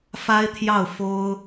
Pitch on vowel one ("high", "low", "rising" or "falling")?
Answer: high